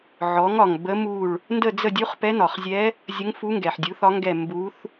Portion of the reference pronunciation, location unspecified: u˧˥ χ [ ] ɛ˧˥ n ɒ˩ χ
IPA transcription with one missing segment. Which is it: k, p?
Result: p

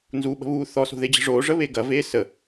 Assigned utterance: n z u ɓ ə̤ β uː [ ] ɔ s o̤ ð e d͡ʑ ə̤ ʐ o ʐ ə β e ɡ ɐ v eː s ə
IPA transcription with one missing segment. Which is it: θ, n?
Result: θ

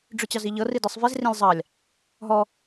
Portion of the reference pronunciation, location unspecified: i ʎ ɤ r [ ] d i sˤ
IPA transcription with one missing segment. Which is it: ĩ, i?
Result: i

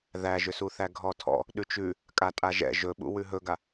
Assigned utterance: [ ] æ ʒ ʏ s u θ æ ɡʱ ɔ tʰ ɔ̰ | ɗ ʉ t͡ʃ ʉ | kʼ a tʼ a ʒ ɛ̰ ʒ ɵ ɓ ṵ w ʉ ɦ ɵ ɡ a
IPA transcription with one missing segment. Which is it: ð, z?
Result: ð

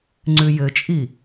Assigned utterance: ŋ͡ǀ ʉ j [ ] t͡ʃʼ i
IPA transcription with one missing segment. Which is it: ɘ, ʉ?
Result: ɘ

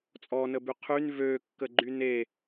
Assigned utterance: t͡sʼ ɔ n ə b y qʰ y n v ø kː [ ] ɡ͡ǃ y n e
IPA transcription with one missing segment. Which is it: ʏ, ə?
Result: ə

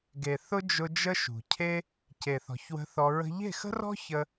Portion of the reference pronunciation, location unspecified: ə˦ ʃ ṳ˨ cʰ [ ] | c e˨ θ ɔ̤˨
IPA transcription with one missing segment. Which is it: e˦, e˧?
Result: e˦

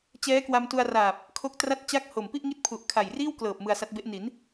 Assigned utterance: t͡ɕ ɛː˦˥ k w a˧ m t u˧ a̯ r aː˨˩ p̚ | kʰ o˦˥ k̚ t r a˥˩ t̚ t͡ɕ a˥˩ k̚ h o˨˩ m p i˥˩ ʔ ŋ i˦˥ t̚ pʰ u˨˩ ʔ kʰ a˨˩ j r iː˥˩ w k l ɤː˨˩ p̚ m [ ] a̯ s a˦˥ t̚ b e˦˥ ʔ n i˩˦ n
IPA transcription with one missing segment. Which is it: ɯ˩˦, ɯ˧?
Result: ɯ˧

